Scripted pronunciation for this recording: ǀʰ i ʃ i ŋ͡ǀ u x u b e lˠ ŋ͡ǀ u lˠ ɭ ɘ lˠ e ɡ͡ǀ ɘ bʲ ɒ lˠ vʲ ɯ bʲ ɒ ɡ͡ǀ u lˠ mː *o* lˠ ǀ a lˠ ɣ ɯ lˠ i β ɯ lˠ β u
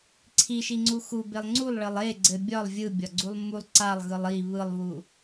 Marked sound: incorrect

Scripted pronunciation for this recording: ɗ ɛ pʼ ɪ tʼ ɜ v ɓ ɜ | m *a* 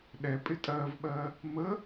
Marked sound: incorrect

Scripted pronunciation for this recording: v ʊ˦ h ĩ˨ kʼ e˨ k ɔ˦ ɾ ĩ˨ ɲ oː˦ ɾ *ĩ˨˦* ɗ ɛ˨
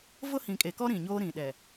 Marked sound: incorrect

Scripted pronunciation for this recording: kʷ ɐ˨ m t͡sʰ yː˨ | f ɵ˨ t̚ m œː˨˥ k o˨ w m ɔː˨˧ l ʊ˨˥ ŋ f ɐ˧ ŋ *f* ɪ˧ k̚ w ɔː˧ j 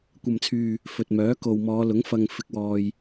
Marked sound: correct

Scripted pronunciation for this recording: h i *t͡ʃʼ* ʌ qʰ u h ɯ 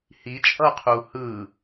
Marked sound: correct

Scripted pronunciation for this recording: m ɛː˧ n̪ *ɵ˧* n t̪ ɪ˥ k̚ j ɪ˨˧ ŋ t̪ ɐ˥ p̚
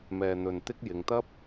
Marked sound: correct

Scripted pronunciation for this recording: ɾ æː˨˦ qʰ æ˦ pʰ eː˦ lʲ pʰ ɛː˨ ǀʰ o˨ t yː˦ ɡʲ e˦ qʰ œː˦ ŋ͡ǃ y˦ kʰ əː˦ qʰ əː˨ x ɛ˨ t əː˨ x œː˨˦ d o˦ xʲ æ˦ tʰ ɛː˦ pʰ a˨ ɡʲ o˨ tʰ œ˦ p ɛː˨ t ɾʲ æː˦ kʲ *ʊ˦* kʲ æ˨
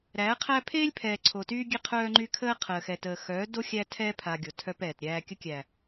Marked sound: incorrect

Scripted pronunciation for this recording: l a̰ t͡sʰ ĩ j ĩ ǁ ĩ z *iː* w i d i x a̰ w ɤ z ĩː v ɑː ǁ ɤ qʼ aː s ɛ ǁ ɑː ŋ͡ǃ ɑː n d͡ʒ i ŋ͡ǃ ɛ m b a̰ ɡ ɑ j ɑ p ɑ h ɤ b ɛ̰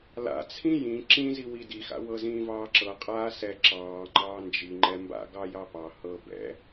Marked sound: incorrect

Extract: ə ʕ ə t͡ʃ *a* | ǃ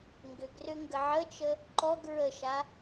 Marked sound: incorrect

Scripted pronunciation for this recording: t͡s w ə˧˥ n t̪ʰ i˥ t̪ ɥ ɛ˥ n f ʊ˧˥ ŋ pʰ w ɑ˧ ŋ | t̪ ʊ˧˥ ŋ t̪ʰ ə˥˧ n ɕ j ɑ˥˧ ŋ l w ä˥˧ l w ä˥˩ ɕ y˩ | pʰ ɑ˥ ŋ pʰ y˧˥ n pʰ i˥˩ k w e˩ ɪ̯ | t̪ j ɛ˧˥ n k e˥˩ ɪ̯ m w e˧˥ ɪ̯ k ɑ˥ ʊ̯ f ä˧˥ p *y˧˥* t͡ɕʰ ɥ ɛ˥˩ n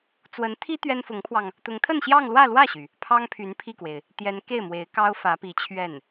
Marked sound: incorrect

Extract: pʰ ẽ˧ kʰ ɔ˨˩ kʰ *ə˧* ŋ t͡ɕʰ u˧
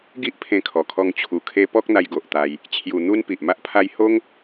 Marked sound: incorrect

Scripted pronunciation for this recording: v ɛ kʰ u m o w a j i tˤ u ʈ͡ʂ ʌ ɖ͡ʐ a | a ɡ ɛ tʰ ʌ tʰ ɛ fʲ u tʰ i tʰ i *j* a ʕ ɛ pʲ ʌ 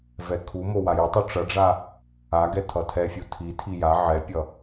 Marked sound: correct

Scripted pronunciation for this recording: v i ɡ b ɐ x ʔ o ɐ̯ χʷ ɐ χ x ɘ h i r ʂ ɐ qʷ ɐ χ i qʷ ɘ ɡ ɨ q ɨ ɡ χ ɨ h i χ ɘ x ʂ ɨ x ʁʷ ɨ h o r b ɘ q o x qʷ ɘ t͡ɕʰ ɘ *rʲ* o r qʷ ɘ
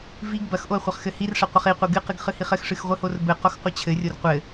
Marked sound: correct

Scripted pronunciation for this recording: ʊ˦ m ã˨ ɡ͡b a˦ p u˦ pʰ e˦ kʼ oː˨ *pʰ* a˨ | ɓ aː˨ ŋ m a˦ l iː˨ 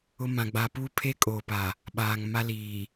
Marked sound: incorrect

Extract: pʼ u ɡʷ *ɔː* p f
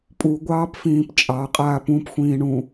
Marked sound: incorrect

